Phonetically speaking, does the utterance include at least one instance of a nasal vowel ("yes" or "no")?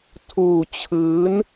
no